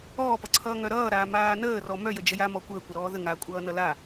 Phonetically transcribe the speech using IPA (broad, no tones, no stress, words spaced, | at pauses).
ɔːpʌǀʰʌː ŋœɾʌːɾaː maːnəːrɔ mœjə d͡ʒəjamɔ kʷəːkʷʌɾɔː ðə ŋakʷʼʌːnʌ la